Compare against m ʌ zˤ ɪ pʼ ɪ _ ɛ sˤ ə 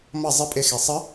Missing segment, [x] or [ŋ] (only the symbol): x